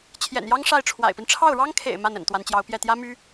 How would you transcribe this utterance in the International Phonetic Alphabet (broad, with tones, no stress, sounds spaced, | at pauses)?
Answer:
t͡ɕʰ j ɛ̰˨˩ n j ɑ˥ ŋ ʂ a˥˩ ɪ̯ ʈ͡ʂʰ w a̰˨˩ ɪ̯ p i˦ n ʈ͡ʂʰ ɑ˥˩ ʊ̯ ɻ ɑ˥ ŋ kʰ ḛ˨˩ ɪ̯ m a˥˩ n ə̰˨˩ n t̪ w a˧˥ n t͡ɕ j ɑ˧˥ ʊ̯ p j ɛ˥˩ t̪ j ä˥ m y˥